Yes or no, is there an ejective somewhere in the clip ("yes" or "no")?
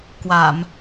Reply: no